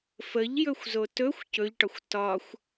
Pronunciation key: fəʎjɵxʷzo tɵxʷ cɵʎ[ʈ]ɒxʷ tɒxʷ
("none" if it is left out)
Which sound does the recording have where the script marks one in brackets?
ʈ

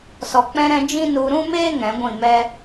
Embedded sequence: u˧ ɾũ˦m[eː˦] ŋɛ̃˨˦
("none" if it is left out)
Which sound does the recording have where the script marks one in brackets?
eː˦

